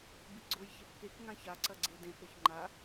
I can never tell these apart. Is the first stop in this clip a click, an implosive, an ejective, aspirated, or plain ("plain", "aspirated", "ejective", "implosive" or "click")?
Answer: plain